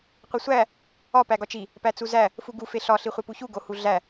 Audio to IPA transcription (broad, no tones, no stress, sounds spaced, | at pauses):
qʷ i sʷ æ | ɒ p æ ɡ ɒ t͡ʃ i | p æ t͡s u z æ | f u ɡ u f e ɬ ɒ ɬ i χʷ e p u ç u ɡ o h u ɮ æ